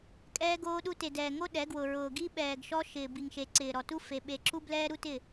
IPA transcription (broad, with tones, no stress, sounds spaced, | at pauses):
kʼ ɛː˦ ɡ oː˦ ɗ u˦ t e˨ d ɛː˨ ŋ o˦ ɗ ɛ˨˦ ɡ w ʊ˨ ɹ ʊː˨ ɡ i˦ ɓ ɛː˨ ɡ ʃ ɔ˦ ʃ ɪː˨ b i˨ ŋ ʃ e˨ ǀ ɪː˨ ɾ ɔ˨ t u˦ f e˨ ɓ e˨ ǁ u˦ b l ɛː˦ ɾ u˦ t ɪ˦˨